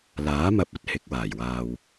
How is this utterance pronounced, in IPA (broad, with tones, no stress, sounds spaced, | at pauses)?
l aː˨˥ m ɐ˧ p̚ ɐ˥ t̚ h ɪ˨˥ k̚ w aː˨˩ j w aː˨ w